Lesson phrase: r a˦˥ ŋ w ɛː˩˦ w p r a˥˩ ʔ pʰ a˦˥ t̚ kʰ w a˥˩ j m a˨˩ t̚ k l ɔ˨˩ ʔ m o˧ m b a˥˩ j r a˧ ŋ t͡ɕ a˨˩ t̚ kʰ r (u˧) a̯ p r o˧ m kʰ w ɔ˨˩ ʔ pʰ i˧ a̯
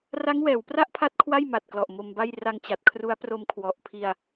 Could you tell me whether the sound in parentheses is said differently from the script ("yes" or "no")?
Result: yes